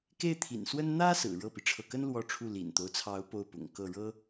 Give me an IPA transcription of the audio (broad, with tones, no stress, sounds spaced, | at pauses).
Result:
k e˥˩ ɪ̯ t̪ʰ ḭ˨˩ n s w ə˥ n n̪ ä˥ s ɹ̩˨˩ ɻ ɤ˥˩ p i˩ ʈ͡ʂʰ ɤ˥˩ k ə˥ n l w ɔ˥˧ ʈ͡ʂʰ u˥˩ l ḭ˨˩ n t̪ o˦ ʊ̯ t͡sʰ ɑ˧˥ ʊ̯ p o˥˩ ʊ̯ p ʊ̰˨˩ ŋ k ɤ˥˩ ɻ ɤ˥